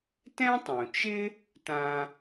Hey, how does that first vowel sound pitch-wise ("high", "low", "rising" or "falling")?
high